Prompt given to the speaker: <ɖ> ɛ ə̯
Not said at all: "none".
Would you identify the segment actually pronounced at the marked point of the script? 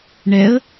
ɳ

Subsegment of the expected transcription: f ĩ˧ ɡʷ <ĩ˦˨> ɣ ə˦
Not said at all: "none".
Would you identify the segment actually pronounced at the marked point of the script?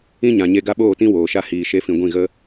ĩ˦˨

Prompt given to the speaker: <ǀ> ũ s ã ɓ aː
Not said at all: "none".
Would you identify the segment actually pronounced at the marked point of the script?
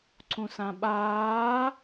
ǀ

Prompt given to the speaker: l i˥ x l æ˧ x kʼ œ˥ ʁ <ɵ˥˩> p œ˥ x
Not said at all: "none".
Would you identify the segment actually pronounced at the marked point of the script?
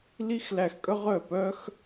œ˥˩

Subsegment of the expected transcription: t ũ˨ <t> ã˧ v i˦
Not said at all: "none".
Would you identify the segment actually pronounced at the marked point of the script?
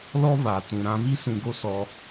ɾ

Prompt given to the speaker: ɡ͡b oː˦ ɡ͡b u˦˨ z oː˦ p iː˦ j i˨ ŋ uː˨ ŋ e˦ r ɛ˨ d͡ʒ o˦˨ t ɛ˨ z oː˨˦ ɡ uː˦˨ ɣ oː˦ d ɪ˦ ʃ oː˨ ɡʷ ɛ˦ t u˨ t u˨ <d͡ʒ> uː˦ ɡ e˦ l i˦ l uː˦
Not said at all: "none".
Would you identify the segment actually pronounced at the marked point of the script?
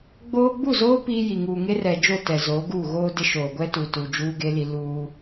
d͡ʒ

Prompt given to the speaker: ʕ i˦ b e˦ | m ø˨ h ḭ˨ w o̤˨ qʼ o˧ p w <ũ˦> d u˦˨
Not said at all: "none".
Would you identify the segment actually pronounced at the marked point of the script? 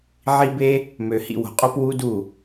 u˦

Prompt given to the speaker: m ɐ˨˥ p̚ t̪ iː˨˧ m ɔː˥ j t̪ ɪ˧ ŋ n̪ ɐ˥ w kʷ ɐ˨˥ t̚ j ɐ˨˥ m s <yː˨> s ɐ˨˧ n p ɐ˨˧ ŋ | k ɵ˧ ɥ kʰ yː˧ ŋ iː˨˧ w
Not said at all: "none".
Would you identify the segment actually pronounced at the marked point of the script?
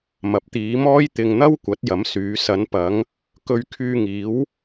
yː˨˧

